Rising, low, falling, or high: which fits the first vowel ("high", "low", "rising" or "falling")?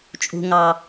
high